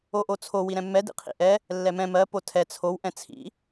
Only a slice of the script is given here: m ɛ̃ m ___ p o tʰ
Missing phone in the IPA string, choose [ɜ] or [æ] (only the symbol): ɜ